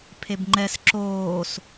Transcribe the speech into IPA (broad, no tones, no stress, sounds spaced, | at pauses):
pʰ e b ŋ͡ǃ ɛ s ǁ oː s